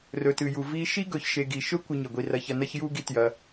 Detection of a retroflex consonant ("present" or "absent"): absent